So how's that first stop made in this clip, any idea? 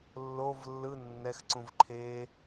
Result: click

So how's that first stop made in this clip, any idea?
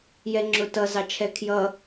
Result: click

